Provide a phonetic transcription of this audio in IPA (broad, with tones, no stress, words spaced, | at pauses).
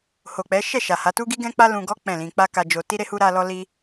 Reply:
ho˨ k͡pɛ˨˦ʃɛ˦˨ ʃa˨ha˨˦tu˦ɡi˦ ɡɛ̃˦k͡pa˦ lũ˧ɡɔ˦ k͡pɛ̃˦˨lĩ˧ k͡pa˦ ka˦d͡ʒo˦ ti˦ɾe˦ hu˦ɾa˦lɔ˦li˦